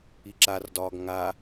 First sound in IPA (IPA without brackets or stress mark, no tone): i